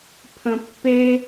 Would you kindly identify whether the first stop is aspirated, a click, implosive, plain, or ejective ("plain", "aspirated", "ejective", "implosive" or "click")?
aspirated